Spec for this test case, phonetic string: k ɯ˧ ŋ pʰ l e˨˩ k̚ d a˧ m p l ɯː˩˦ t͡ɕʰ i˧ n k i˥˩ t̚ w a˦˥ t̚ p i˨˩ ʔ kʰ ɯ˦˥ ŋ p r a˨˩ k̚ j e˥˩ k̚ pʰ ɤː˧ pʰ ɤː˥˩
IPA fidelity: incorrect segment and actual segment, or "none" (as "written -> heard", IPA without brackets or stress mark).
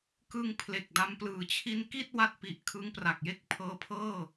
none